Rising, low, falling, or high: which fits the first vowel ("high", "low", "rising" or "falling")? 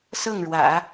falling